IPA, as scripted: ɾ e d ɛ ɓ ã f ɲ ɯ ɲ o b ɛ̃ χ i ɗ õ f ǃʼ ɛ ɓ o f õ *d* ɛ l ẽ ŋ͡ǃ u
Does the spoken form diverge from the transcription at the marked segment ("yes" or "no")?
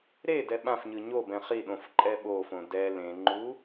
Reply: no